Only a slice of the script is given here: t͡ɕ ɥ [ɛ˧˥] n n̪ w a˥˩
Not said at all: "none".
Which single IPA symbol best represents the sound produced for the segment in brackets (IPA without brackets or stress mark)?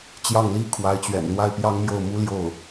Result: ɛ̰˨˩